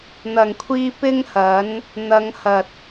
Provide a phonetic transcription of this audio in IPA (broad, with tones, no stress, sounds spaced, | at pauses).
n̪ ɐ˨˩ ŋ kʷʰ iː˧ p ɪ˥ ŋ h ɐ˨˥ n | n̪ ɐ˨˧ ŋ h ɐ˨ t̚